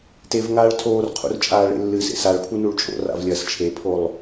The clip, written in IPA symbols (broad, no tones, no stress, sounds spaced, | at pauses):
t e v ŋ aː ɭ tʰ oː r qʰ ṵ r t͡ʃʼ aː ɭ ḛ lː ɨ s ḛ s a ɭ pʰ u n u ɭ t͡ʃʼ o̰ r a̰ v lʲ ɐː s t͡ʃʰ e pʰ o lˠ